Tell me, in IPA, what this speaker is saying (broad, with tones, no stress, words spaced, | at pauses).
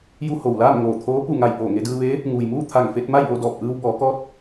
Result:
ju˧ho˩wlaː˥˨m ŋoː˧˩t̪ʰoː˧˥ pu˧˩ŋa˧˩j poː˧˩ŋe˧dɯː˧ʋeː˧˥ | ŋuː˩jmuː˥˨ t̪ʰa˧˩ŋfe˧t̚ ma˥˨jʋo˥˨dɔː˧˩p̚ʔɯː˧w bɔː˩˧kɔː˧˥t̚